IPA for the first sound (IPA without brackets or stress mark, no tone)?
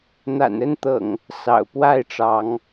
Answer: n̪